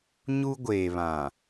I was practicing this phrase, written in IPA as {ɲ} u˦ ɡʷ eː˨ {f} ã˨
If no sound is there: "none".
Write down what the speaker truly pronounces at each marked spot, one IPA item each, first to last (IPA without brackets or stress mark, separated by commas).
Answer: ɲ, β